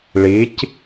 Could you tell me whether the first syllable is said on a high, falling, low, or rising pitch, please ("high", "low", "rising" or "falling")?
rising